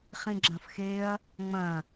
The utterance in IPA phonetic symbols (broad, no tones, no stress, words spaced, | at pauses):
χĩɡ͡ǁɐ̃fxeɐ̯ | ŋ͡mɐ̃